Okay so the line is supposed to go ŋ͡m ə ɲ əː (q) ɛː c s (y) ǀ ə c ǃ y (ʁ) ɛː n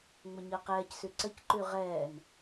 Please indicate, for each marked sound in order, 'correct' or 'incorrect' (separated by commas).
correct, correct, correct